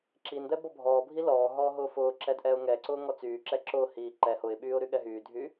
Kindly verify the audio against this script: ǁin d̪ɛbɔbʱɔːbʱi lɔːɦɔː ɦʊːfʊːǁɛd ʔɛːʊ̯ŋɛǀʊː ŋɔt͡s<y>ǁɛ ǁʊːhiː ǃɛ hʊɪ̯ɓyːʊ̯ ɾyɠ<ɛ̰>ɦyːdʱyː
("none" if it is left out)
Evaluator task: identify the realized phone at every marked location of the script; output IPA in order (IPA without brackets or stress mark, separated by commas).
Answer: yː, ɛ